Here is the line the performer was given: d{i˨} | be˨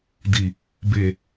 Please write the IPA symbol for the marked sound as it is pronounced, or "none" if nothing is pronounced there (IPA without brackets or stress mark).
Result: i˨